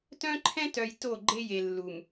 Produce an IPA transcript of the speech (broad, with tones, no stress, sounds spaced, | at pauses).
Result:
t œ̃˦ ǃʰ ɛ̃˦ t œ˨ j t o˦˨ ɡ͡ǃ e˦ j e˨ lː u˨ m